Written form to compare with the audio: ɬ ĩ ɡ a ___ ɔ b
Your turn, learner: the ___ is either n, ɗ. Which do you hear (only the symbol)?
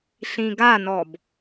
n